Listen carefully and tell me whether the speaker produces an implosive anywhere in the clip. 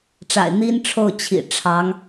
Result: no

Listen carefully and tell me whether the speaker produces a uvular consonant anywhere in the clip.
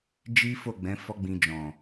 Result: no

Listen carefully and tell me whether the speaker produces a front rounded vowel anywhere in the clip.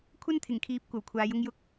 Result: no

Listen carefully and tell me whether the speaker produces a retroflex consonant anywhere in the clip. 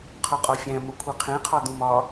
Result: no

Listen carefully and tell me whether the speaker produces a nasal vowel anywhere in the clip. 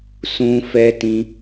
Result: yes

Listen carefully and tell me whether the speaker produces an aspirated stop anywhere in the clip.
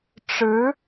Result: no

